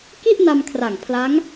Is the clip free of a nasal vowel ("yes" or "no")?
yes